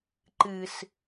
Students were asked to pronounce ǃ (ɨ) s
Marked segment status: correct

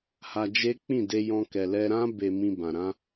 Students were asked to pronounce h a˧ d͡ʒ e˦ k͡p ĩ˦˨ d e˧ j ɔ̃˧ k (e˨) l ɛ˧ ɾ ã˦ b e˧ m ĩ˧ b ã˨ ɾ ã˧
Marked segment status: incorrect: ɛ˨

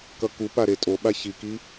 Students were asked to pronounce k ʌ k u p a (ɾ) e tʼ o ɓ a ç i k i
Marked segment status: correct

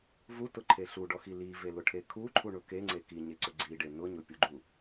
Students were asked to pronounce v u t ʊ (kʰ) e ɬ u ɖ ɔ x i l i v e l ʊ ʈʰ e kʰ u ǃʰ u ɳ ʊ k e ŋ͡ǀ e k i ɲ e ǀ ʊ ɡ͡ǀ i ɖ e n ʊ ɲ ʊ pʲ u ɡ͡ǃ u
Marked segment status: incorrect: ǃʰ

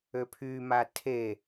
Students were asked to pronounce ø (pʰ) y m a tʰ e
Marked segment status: correct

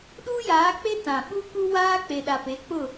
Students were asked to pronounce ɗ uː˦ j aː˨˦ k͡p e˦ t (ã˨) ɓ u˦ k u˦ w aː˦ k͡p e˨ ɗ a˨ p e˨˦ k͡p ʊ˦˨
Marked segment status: correct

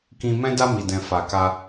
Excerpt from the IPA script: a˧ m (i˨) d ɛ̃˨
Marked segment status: correct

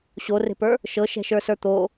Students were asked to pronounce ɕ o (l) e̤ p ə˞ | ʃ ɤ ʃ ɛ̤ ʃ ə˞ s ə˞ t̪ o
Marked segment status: incorrect: r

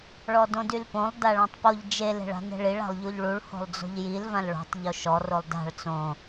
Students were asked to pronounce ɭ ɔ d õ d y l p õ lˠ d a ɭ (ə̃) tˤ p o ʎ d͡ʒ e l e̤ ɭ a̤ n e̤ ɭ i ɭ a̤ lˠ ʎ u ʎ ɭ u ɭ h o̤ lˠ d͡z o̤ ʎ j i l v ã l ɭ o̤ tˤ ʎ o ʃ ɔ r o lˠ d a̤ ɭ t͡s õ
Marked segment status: incorrect: ã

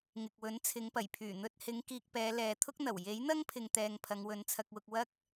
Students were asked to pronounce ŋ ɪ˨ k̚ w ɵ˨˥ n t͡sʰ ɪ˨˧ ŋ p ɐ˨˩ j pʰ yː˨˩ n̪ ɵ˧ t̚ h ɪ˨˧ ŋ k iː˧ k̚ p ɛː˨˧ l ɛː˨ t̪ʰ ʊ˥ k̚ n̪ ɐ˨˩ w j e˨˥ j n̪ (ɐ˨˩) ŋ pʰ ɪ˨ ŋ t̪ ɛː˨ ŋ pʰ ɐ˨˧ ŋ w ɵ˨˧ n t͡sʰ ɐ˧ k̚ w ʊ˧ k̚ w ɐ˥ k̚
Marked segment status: incorrect: ɐ˥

